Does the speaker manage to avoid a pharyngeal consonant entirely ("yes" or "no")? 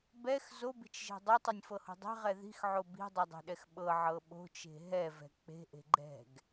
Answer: no